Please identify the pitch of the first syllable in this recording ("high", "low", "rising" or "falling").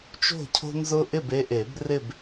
falling